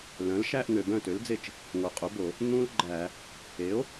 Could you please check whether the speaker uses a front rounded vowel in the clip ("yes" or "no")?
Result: yes